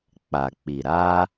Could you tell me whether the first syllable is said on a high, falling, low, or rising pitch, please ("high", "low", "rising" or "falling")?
low